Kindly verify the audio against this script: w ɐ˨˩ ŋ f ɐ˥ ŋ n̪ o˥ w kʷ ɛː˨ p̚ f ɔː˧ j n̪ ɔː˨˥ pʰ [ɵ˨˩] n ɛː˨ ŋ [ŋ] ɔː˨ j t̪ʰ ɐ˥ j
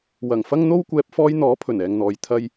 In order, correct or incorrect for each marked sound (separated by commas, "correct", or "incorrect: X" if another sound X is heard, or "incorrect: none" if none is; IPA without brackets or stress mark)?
correct, incorrect: n̪